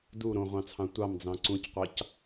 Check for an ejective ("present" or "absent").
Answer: absent